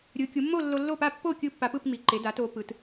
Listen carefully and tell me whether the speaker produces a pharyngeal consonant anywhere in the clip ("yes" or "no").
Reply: no